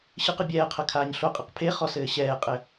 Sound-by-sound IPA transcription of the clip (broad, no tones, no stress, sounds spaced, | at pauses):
ɕ ɨ q ɨ bʲ ɛː qʰ ɐ kʰ aː ɲ ɬ o qʼ ɨ q pʰ e χ ɔ s ɘː ɕ ɛː qʼ ɘ